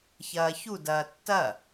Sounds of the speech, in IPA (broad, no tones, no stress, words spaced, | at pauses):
çɐːçu dɐːtːɐ